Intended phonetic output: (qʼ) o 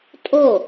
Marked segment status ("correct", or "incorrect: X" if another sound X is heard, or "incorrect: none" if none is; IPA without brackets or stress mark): incorrect: tʼ